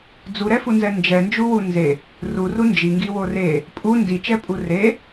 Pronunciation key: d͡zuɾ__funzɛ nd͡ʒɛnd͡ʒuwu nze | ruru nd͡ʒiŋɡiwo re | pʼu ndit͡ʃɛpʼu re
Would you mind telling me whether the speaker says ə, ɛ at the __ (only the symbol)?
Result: ɛ